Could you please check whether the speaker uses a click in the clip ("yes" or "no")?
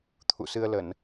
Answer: no